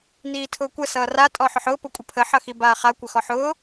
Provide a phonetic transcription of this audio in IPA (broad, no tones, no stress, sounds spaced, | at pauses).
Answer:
n iː tʰ ʊː kʷ ə s ʌː r a tʼ ɔ ħ ʊ ħ ʊː p ʊ kʷʼ ə pʰ ə ħ ʌ x i b aː χ a kʷ ə x ɔ ħ ʊː